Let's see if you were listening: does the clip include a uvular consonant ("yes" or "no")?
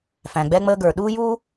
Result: no